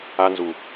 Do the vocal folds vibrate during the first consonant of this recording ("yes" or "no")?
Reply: yes